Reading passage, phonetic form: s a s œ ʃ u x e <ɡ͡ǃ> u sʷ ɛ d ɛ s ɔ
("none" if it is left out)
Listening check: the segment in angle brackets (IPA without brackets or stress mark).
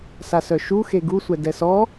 ɡ